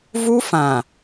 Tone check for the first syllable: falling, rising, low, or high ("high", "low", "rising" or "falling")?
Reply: high